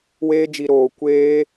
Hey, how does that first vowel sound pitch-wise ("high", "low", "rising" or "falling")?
high